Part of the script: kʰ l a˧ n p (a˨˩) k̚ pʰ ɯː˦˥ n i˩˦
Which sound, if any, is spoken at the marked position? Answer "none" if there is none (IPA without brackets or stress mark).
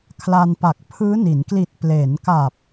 a˨˩